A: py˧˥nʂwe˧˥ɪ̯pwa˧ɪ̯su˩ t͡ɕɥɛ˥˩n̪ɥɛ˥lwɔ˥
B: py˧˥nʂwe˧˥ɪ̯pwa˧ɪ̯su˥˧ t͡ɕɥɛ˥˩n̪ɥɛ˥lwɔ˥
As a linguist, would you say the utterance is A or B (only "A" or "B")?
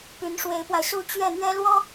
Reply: B